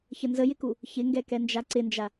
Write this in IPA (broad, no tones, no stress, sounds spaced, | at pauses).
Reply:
ç ə n z ə j ɪ k u | ç ɪ ŋ ɡ ɛ k ɛ n d͡ʒ a ǀ ɪ n d͡ʒ a